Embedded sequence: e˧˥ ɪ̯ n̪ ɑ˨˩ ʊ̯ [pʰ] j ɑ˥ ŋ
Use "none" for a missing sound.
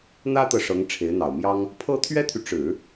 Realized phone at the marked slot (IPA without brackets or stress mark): m